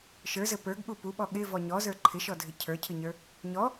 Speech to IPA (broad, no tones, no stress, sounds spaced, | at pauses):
ʃ ə˞ z ɘ p ə˞ ɡ ɠ u p u ɓ ɔ ɠ ɪ v ɔ ɲ ɔ z ə˞ ǃʰ ɪ ʃ ɔ dʱ ɪ cʰ ə˞ cʰ ɨ ɲ ə˞ | ɲ ɔ